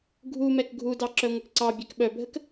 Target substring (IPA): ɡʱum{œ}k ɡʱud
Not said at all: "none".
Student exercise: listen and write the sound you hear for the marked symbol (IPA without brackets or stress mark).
ɛ